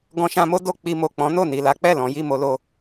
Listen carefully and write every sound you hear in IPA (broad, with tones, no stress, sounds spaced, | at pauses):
ɡ ɔ̃˧ ʃ ã˧ m o˦ d o˧ k͡p i˧ m o˨ k͡p ɔ̃˨˦ n o˦˨ n i˨ l a˨˦ k͡p ɛ˦˨ l ɔ̃˨˦ j i˦˨ m o˧ l o˧